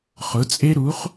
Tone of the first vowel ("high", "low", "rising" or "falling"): rising